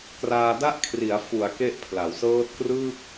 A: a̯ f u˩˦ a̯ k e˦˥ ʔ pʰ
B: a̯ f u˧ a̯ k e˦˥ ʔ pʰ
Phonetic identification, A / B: A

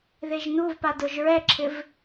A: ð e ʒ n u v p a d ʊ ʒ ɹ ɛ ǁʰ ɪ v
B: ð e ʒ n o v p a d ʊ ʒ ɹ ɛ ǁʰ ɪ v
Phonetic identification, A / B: A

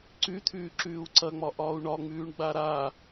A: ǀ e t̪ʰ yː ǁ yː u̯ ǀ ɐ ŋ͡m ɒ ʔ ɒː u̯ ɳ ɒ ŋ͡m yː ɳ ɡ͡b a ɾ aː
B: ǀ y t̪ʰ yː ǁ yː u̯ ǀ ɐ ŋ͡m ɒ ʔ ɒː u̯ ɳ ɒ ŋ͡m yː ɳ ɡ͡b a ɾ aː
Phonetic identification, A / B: B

